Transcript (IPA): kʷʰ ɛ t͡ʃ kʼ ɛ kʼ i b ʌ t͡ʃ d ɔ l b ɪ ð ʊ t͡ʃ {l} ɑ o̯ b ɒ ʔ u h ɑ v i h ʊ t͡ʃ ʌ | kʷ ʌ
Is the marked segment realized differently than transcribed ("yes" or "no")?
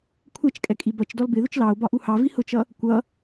no